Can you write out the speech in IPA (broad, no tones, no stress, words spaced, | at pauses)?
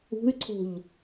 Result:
ṳy̯ǀʰo̤ʎ